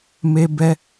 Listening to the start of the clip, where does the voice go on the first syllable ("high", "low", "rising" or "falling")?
high